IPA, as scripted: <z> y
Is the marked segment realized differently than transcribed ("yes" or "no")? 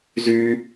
no